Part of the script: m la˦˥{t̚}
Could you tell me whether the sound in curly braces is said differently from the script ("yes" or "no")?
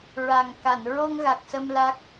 yes